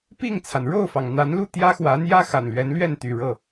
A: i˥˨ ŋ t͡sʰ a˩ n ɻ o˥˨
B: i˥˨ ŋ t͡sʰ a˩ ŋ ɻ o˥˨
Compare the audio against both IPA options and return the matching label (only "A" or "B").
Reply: A